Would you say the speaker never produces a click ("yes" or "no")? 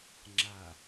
no